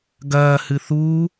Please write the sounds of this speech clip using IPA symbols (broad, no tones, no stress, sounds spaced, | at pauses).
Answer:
ɡ ɐː h ɨ θ uː